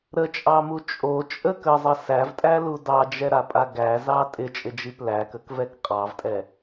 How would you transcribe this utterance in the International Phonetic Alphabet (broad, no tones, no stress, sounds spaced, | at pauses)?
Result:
ɾ ə t͡ʃʼ ɑ m u t͡ʃʼ o t͡ʃʼ ə k ə zˤ ə s æ v tʼ æ l u d ɑ d͡ʒ ɛ ɾ a pʼ a ɡ æ z ɑ tʼ ɪ t͡ʃʼ ɪ d͡ʒ i p l æ k ə k v ɛ k qʼ ɑ v tʼ ɛ